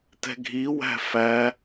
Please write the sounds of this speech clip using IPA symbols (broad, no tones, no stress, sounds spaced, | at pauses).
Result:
t ɛ̤ ɡʱ i w æ̤ f æ